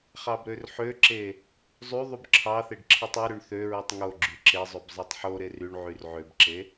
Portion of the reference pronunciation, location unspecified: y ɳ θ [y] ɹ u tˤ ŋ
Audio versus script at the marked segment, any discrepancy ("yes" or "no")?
yes